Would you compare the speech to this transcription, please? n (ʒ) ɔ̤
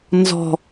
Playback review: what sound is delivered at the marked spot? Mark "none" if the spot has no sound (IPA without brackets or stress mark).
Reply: z